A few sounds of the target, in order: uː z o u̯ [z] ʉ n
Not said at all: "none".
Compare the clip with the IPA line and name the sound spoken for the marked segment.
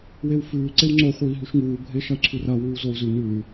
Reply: z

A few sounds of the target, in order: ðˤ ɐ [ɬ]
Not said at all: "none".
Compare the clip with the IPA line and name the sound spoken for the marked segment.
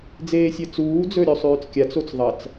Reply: t͡s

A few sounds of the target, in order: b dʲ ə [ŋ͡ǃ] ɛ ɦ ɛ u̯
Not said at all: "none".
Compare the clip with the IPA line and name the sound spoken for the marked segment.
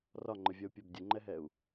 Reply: ŋ͡ǃ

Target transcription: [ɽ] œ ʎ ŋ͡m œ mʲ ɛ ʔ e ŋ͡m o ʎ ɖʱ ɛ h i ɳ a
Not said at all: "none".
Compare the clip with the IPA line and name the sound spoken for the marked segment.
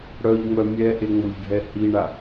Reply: ɽ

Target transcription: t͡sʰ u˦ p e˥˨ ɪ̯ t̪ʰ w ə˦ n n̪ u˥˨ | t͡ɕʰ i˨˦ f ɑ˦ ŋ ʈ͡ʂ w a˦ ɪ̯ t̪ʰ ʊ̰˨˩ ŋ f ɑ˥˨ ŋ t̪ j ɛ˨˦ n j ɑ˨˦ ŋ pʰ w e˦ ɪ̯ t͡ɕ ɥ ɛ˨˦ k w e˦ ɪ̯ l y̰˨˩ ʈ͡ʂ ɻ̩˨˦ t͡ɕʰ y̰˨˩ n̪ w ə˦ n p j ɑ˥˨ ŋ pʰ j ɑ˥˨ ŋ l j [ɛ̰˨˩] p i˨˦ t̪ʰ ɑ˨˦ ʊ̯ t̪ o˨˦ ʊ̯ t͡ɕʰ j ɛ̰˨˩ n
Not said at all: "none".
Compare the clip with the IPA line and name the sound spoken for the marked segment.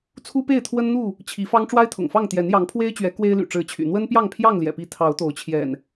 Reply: ɛ̰˨˩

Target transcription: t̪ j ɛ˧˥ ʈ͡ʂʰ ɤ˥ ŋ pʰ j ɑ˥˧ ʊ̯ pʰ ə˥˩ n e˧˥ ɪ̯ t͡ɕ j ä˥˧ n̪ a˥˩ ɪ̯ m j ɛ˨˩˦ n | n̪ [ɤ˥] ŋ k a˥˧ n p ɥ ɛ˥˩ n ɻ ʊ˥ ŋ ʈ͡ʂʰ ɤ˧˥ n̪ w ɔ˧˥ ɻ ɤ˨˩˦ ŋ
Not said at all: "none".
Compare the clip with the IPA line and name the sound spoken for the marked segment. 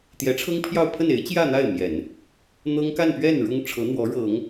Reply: ɤ˥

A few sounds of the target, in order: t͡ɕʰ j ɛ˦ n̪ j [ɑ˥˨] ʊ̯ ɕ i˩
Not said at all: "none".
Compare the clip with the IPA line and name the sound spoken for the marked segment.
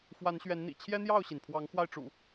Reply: ɑ˥˨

